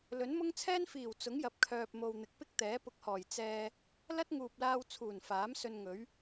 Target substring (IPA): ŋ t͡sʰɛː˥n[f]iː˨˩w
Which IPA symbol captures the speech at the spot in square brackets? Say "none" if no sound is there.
f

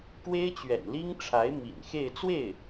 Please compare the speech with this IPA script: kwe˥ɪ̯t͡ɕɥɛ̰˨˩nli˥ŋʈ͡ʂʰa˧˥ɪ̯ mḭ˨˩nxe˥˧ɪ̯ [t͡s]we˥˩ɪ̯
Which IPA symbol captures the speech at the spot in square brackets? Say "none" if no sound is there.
t͡s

